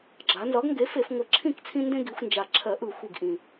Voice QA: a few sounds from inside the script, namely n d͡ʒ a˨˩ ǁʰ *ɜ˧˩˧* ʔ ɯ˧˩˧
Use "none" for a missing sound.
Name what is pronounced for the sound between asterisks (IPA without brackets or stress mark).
ɜ˧˩˧